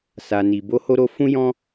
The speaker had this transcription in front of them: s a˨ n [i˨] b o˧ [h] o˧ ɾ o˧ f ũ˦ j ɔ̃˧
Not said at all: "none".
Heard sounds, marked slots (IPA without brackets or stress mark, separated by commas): i˨, h